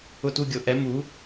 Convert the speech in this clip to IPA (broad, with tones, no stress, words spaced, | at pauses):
ʊ˥˧tu˥˧ ɡʲʊ˩˥ ʔɛ˩˥ mu˩˥